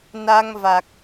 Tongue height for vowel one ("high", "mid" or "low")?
low